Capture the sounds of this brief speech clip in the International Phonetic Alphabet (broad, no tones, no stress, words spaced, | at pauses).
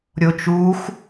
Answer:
ɾʲot͡ʃux